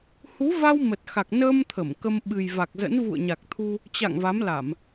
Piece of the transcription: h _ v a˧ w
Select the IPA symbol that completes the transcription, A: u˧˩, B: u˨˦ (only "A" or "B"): B